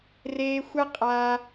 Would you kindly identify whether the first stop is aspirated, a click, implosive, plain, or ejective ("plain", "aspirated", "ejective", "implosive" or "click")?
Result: ejective